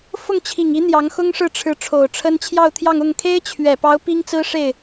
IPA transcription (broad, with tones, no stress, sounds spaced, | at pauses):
f ʊ˥˩ ŋ t͡ɕʰ i˨˩ ŋ i˧˥ n̪ j ɑ˧˥ ŋ x ʊ˥ ŋ ʂ ɻ̩˥˩ ʈ͡ʂʰ ɻ̩˧˥ ʈ͡ʂʰ o˨˩ ʊ̯ ʈ͡ʂʰ ə˥ n t͡ɕʰ j ɑ˥˧ ʊ̯ t̪ʰ j ɑ˥˧ ŋ ʊ˥˩ ŋ kʰ e˥ ɪ̯ t͡ɕʰ ɥ ɛ˨˩ p ɑ˧˥ ʊ̯ p i˥ ŋ t͡s ɹ̩˥ ʂ e˥˩ ɪ̯